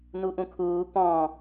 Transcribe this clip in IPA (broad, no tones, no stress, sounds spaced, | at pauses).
n u ʔ ũ kʰ uː p ɔ̃